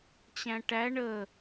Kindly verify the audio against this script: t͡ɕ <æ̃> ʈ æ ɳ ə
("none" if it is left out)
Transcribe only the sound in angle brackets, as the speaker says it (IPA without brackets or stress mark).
æ̃